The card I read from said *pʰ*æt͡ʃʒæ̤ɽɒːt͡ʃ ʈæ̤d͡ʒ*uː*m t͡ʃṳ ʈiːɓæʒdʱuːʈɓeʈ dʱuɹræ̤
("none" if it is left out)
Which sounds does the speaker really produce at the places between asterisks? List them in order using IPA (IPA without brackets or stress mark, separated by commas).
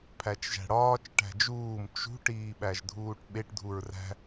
pʰ, uː